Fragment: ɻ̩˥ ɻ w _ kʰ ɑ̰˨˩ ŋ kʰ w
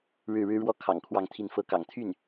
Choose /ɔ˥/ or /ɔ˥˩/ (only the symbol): ɔ˥